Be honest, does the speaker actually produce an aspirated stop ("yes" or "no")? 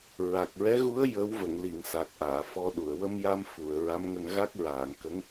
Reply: no